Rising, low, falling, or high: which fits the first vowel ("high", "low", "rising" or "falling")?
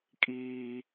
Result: high